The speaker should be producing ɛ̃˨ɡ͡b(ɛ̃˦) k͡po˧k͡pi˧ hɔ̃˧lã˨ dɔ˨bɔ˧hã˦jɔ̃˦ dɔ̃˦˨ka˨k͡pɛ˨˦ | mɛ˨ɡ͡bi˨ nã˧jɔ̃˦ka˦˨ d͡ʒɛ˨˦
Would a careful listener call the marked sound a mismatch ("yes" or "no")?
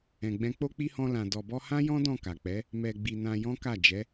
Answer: yes